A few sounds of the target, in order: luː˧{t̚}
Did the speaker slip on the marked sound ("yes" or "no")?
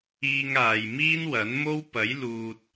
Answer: no